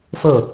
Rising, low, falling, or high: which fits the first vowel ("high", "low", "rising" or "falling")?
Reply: falling